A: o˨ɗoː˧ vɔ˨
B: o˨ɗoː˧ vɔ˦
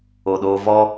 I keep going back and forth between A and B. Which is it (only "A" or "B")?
B